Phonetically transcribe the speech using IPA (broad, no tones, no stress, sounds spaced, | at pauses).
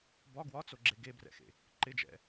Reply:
b ɒ ɡ w ɒ t͡s o ɡ͡ǁ e ɡ e b r ɛ̰ x ḛ | ǃ ɪ d͡ʒ ɛ̰